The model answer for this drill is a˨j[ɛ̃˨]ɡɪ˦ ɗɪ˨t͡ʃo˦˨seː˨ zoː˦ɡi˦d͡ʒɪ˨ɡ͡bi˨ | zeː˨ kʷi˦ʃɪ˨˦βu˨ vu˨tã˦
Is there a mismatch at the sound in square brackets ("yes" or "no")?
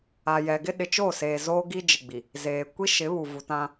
yes